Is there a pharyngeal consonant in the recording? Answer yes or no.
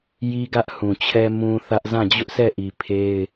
no